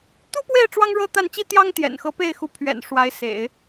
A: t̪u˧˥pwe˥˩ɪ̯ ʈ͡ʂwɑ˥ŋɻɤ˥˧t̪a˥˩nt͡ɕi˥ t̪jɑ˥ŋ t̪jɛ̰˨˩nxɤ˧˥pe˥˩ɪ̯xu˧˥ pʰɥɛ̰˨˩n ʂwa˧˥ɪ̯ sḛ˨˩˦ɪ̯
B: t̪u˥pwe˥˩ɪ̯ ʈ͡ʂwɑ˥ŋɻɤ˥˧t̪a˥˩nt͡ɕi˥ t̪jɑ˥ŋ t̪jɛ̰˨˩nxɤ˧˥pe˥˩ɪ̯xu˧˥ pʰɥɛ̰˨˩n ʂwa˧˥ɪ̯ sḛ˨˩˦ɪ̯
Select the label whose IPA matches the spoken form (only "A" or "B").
B